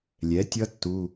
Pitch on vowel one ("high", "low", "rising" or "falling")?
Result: rising